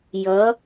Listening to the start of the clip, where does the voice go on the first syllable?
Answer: rising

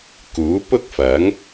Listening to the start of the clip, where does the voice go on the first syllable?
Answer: rising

